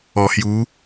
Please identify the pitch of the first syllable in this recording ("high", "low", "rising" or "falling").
low